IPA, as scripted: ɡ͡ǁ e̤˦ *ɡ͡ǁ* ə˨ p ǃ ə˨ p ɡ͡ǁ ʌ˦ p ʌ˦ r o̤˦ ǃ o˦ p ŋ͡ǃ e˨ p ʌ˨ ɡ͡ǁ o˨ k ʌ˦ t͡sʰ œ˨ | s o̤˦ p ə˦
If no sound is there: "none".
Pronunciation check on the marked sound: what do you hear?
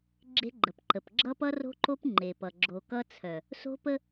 ɡ͡ǃ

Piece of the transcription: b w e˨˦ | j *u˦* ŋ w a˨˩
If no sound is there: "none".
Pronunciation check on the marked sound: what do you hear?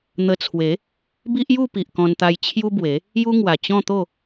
u˦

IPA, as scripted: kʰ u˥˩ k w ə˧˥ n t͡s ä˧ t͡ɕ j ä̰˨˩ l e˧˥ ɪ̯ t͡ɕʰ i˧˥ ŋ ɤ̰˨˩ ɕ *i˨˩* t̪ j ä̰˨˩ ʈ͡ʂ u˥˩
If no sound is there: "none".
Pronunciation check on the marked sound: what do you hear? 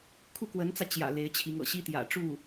i˥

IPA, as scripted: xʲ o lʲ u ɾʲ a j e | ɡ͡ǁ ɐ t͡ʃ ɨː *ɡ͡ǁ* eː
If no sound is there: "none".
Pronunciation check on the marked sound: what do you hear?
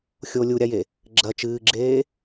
ɡ͡ǁ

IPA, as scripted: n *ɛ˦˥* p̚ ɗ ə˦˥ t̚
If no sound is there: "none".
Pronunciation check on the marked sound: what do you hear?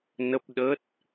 ə˦˥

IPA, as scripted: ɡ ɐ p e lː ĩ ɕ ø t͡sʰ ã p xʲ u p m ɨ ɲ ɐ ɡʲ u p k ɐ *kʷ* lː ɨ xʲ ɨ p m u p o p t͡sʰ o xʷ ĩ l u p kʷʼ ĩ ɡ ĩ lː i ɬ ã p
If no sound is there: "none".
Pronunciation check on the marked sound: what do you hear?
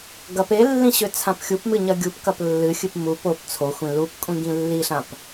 p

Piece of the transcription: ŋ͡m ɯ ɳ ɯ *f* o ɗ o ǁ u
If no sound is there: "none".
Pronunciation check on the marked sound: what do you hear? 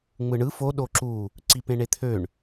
f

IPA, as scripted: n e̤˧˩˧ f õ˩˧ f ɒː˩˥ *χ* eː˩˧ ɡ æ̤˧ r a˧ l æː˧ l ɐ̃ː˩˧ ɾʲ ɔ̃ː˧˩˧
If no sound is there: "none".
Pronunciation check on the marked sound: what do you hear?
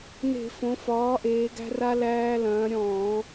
ʔ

